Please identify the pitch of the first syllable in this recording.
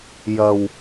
low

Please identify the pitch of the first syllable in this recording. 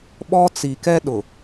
high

